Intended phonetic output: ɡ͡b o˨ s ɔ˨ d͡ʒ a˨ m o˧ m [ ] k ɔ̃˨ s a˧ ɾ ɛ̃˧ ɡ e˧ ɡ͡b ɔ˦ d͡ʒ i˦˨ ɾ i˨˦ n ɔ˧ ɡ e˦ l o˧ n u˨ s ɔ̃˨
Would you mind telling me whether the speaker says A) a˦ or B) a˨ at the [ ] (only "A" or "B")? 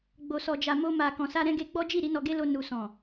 B